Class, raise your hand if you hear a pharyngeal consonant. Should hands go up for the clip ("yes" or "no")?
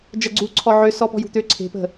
yes